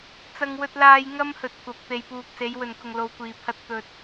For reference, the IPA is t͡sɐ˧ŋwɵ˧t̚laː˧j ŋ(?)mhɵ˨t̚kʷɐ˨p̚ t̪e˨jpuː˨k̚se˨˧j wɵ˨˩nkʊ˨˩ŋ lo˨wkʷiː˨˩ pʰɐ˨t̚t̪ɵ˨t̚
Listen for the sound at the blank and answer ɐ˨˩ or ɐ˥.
ɐ˥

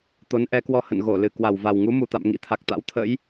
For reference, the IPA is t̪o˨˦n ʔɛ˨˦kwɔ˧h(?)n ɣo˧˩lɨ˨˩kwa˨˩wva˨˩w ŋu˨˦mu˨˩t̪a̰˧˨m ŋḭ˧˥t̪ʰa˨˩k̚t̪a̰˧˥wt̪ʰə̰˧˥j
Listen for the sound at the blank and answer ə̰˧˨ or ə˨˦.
ə̰˧˨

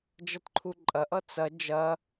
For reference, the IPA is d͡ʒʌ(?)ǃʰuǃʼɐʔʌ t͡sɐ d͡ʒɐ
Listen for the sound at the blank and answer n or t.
t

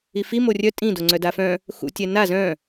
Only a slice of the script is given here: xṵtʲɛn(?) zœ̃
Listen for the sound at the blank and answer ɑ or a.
a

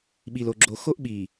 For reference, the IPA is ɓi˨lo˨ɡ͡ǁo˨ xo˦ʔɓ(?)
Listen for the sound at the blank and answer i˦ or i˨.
i˨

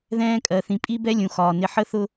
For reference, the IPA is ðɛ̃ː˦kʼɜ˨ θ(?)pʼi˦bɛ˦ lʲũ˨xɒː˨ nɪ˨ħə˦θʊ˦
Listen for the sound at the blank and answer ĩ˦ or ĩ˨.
ĩ˨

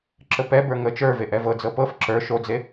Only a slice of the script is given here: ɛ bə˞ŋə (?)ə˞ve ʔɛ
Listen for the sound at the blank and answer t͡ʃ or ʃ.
t͡ʃ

